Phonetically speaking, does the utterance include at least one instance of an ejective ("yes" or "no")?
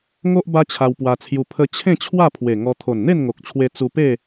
no